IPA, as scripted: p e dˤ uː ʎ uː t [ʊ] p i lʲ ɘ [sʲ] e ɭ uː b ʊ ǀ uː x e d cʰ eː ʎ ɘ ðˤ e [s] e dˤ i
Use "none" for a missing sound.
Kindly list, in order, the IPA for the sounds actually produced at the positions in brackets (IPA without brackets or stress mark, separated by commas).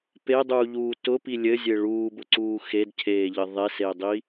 ʊ, zʲ, s